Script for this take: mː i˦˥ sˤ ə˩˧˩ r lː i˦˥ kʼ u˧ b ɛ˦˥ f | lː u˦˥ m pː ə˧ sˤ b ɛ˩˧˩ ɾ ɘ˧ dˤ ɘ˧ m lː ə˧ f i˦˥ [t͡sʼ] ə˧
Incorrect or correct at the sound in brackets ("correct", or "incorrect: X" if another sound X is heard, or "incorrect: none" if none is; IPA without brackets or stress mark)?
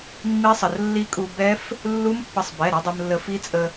correct